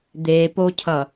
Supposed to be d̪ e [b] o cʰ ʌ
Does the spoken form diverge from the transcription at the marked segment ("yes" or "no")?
yes